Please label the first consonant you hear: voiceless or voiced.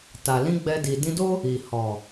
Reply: voiceless